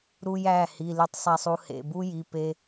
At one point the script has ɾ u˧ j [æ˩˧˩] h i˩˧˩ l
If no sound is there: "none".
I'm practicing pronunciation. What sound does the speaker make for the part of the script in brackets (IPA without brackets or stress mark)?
æ˩˧˩